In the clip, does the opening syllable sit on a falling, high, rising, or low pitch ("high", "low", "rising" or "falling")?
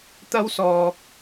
high